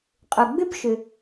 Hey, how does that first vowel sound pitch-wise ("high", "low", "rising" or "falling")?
low